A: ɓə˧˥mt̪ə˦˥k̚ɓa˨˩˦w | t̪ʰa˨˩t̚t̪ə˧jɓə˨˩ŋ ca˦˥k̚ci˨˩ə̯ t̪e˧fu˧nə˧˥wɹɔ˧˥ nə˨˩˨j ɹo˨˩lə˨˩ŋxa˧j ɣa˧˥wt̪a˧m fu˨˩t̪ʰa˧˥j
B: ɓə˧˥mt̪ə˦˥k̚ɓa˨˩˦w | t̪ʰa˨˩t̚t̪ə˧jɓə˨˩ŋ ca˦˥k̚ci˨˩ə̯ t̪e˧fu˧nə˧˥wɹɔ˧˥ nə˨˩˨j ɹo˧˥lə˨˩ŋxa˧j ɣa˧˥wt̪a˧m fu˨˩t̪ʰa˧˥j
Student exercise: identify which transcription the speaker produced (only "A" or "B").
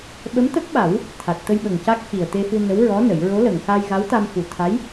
B